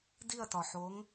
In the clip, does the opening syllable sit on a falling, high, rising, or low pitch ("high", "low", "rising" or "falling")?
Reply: falling